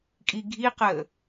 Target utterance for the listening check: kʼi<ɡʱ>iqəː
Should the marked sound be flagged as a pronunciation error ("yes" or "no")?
no